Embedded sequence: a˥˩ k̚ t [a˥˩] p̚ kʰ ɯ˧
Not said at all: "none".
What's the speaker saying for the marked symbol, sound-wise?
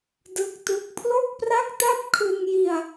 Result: a˥˩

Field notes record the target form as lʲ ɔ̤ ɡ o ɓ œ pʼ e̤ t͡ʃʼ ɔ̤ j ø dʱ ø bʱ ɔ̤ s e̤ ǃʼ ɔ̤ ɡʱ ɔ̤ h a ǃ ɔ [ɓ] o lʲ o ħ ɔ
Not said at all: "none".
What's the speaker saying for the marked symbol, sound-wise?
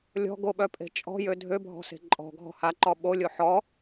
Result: ɓ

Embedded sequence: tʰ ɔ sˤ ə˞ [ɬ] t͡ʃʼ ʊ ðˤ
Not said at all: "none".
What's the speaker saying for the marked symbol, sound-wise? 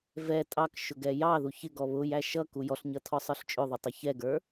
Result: ɬ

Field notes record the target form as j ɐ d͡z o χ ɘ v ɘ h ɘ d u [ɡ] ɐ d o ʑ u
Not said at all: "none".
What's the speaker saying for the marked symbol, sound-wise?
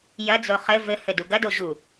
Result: ɡ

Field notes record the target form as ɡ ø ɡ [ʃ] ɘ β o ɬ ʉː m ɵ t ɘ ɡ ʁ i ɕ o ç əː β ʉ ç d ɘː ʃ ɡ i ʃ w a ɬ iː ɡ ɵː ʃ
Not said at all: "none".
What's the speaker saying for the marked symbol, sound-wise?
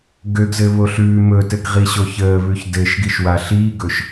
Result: z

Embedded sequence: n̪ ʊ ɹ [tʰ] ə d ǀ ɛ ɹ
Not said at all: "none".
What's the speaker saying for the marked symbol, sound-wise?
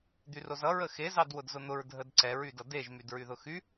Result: dʱ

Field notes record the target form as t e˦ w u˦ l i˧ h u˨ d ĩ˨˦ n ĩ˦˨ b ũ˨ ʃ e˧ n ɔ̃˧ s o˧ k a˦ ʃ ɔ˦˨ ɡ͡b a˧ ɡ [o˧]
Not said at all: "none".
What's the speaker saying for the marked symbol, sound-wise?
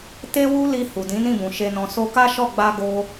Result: o˦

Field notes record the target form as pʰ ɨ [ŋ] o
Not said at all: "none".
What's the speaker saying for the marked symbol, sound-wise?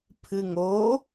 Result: ŋ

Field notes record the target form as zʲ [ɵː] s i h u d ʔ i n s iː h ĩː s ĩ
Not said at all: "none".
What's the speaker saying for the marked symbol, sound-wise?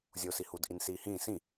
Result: oː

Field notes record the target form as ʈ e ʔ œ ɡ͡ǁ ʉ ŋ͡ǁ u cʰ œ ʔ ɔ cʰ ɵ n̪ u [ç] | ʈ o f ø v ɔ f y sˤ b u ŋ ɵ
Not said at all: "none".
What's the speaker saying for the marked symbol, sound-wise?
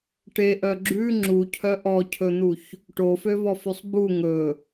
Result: ç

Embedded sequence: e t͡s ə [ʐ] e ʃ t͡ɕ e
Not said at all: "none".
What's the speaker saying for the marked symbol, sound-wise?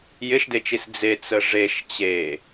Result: ʐ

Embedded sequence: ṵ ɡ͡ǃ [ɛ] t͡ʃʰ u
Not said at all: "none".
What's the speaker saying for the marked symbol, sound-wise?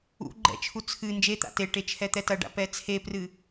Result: ɛ̰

